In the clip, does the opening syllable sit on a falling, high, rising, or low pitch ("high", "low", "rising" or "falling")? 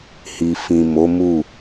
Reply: low